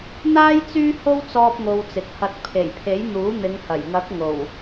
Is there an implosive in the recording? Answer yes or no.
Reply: no